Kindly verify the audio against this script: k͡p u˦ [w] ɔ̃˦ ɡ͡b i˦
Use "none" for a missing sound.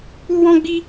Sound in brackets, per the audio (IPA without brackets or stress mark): w